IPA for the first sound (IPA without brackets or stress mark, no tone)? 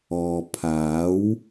ɔː